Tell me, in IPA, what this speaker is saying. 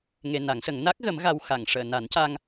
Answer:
ŋ e˧ n a˨˩˦ ŋ s ə˨˩˦ ŋ n a˦˥ k̚ ɣ ə˨˩˦ m ɣ a˧ w x a˨˩˨ ŋ ʂ əː˨˩˨ n a˨˩˦ n c a˧ ŋ

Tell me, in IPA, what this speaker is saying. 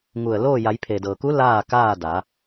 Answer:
ŋ u˧˩ ə̯ l oː˥˨ j a˩˧ j pʰ e˩ d ɤː˩ k u˧˥ l aː˥˨ k aː˥˨ d a˩˧

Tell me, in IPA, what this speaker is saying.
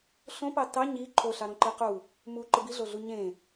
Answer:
ɬ õ p ɑ t ɑ ɲ i ǃʰ o ɬ ɑ ɾ õ ǃ i q u | m u ǃ ɯ b i ɮ o ɮ u ɲ ẽ

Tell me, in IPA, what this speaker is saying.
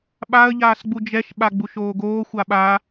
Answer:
ɓ a ə̯ ʎ aː s ɡ͡b u d͡ʒ ɛ ʃ ɓ a ɡ͡b u ʃ oː ɡ oː xʷ a ɓ a

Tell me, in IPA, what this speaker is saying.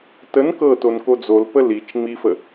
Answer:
t ə n k ɤ t o n k o d͡z o l p ə l i t͡ʃ ŋ͡m i f ə

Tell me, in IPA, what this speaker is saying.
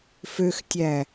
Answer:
f ø x tʲ æ

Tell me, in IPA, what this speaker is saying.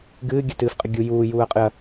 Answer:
ɡ ɨː ɡʲ ə t ɨː f qʼ ɨ ɡʲ u j uː j uː ɐ̯ qʼ ɨ ɐ̯

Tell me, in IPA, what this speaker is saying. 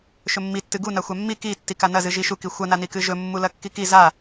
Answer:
ʃ ɵ mː i tː ɨ ɡ u n a xʷ a mː i k i tː i k a n ɐ z ɨ ʒ i ʃ u k i xʷ ɐ n a n i k ɨ ʒ ɵ mː u l ɐ kː i k i z a

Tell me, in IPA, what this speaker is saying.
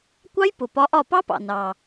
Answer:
kʷ ɑ˦˥ j p ʊ˩ p ɒ˨˥ ʔ ɒ˧˩ p ɑ˦˥ p ɑ̰˩ n ɑ˩

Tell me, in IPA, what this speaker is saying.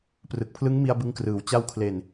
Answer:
p r ɯ˨˩ k̚ pʰ l ɯ˦˥ ŋ m i˧ a̯ b ɯ˧ ŋ k r ɯː˨˩ w t͡ɕ a˧ w kʰ l e˨˩ n

